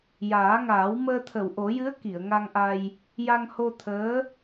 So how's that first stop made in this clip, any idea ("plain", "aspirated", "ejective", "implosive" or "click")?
aspirated